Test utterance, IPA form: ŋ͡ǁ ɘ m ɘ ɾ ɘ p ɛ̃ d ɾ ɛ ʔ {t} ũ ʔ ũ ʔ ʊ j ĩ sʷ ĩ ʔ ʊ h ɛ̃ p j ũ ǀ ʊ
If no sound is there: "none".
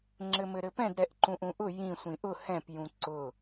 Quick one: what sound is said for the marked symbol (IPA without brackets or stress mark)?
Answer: ǃ